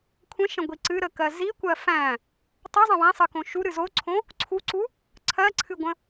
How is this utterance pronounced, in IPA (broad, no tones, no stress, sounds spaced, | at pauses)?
kʷʰ ə̃ ʃ ə̃ ɡʷ i ǀ ɨ ɾ ə k ɜ z i kʷ ɜ f æ̃ | tˤ u zˤ ə̃ w æ̃ sˤ ɨ k õ ʃ u ɾ ɨ z o ǀʰ õ | ǀʰ u ǀ u | ǀʰ ɜ ǀʰ ɨ ɡʷ ə̃